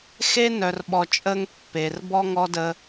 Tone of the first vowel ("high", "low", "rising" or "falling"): high